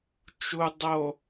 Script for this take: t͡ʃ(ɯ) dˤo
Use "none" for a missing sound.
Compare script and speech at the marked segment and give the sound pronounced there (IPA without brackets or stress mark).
u